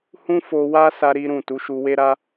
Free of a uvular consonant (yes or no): yes